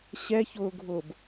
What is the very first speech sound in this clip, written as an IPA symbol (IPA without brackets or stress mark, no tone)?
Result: ɕ